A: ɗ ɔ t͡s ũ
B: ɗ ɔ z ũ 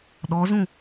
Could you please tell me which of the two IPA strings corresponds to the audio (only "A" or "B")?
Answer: B